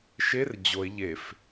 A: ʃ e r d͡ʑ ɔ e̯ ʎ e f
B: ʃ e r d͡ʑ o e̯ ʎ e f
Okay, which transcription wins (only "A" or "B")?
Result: B